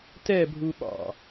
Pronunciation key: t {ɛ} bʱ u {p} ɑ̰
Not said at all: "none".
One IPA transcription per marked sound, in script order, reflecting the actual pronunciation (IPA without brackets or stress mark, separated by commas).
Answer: ɛ, ɓ